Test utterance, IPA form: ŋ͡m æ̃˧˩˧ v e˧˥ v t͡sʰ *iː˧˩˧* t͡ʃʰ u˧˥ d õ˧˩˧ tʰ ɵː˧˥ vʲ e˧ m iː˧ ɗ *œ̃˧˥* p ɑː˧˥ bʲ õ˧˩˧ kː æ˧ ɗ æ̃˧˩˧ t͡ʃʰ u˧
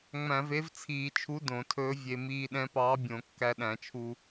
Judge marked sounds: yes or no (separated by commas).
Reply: yes, no